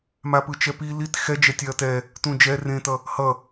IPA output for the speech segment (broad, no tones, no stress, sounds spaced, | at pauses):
m a p ɯ t͡ʃ ɛ p i l i t x ɛ d͡ʒ ɛ tʲ ɛ ɐ̯ t ɛ | t ũ d͡ʒ ɛ r ẽ t ʌ | h ʌ